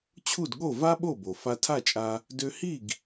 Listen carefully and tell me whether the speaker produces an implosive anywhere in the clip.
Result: yes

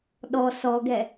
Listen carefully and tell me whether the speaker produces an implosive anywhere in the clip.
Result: yes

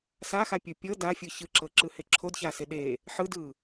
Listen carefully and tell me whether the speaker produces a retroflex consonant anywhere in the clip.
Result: no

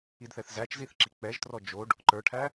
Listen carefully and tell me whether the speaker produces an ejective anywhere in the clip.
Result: no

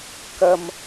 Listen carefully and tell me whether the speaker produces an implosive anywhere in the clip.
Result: no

